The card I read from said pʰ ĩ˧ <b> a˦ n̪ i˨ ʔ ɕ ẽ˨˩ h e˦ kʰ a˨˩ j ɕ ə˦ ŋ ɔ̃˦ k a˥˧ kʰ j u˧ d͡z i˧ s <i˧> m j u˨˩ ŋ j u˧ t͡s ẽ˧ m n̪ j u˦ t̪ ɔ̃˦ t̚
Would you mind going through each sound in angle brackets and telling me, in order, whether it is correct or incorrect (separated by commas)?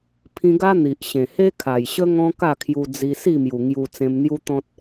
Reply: incorrect, incorrect